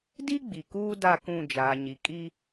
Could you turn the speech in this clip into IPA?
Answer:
d i˦ ɡ͡b i˨ k uː˦ d a˦˨ k ũ˦˨ d͡ʒ aː˨ ɲ i˨ kʼ i˦

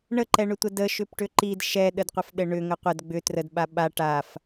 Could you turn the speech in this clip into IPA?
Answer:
ɳ ə ǃ ɛ ɳ ʏ tʷ ə d ə ʃ ʏ p ʈ ʏ ǃ i d ʃ ɛ ɗ ə d qʷ ə f ɗ ɘ ɳ ʏ ŋ ə qʷ ə d ɡ͡b ʏ t r ə d ɓ a ɓ a ʈ a f

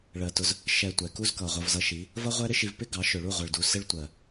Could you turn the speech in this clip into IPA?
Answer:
ɭ ɜ˨ t ʊ˧ z | ʃ ɛ˧ tʷ ɛ˨ k u˦ z k ʌ˨ ʁʷ ʌ˧ v z ʌ˧ ʃ i˨˦ | v ʌ˦ ʁʷ ɛ˦ ɾ ɪ˦ ʃ i˧ v p ɪ˦ ɡ ɑ˨˦ ʃ ʊ˨ ɭ u˦˨ ʁʷ ʌ˨ ɭ d u˨ s ɪ˦ ɭ tʷ ɜ˨

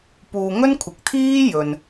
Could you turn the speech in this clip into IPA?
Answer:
p uː˨ ŋ ɵ˥ n kʷʰ ɪ˨ k̚ t̪ʰ iː˥ j ɵ˨ n

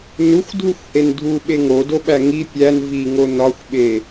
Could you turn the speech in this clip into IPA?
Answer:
n u xʷ dʱ u xʷ h e n dʱ u ɓ e ŋ o d o ɓ æ ŋ i pʲ æ n v i ŋ o n ɒ xʷ ɓ e

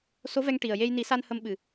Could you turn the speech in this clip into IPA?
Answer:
s o˧˥ v ɛ˧ ŋ ʈ i˨˩ ə̯ j e˧ j n i˨˩˦ s a˧ n h ə˧ m ɓ ɨ˨˩

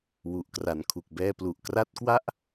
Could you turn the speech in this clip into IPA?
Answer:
w u˨˩ ʔ k r a˨˩ n kʰ u˨˩ k̚ b ɛː˧ p l u˨˩ ʔ k r a˦˥ t̚ k w a˥˩ ʔ

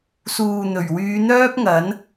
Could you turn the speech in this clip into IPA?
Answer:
s uː˨ n̪ ɵ˨˩ ɥ w yː˨˧ n̪ œː˥ p̚ ŋ ɐ˨˥ n

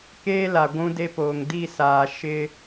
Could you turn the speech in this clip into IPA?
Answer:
k eː˦ l a˨ ɡʷ ũ˦ d e˦ p oː˨ ŋ d i˦˨ s aː˨ ʃ ɪ˦

